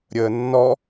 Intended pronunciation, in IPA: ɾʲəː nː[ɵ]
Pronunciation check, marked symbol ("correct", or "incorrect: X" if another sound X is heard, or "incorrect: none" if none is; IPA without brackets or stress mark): incorrect: ɔ